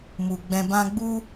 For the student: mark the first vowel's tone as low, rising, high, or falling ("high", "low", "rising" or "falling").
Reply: low